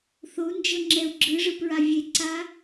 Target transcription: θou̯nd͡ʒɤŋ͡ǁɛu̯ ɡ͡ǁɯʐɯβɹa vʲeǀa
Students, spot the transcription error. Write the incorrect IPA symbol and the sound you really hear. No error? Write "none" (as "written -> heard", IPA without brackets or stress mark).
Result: β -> p